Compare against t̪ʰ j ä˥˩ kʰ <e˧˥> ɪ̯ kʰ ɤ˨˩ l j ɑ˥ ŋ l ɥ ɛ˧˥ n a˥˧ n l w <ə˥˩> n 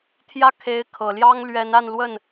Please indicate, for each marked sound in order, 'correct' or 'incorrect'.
correct, correct

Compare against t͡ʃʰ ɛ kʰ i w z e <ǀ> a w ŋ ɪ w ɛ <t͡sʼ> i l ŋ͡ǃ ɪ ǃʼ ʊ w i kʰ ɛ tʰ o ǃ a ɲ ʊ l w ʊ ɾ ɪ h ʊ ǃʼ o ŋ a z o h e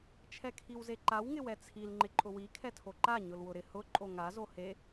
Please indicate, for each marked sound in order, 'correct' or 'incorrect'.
incorrect: ǃ, incorrect: t͡sʰ

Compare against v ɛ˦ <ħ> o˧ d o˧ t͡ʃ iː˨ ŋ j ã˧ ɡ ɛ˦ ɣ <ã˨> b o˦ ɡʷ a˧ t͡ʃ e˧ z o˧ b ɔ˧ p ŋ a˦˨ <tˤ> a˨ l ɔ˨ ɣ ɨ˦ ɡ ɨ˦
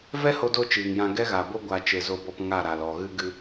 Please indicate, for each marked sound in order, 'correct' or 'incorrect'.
incorrect: h, incorrect: a˨, incorrect: ɾ

